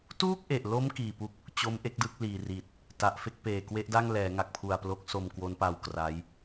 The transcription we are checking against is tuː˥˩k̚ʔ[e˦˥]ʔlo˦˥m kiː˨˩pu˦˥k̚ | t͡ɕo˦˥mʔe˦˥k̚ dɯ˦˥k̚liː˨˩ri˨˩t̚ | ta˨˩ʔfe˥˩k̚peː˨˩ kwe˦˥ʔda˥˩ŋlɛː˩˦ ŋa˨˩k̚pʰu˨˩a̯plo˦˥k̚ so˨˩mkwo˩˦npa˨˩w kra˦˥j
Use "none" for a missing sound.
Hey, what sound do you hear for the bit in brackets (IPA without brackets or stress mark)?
e˨˩